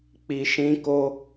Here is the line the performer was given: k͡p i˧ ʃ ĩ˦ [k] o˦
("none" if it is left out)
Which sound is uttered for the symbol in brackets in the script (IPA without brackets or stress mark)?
k